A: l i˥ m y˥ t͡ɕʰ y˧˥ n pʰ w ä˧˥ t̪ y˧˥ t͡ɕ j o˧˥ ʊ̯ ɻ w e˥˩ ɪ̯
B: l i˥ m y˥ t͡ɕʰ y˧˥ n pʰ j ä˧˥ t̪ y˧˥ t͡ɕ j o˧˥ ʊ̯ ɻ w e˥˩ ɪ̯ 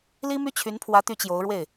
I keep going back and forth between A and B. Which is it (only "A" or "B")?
A